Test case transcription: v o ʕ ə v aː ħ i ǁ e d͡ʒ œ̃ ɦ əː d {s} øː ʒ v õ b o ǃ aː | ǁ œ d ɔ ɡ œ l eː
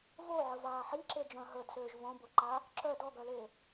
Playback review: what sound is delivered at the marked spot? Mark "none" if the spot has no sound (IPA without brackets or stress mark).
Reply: s